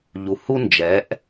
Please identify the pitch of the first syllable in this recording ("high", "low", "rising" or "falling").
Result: low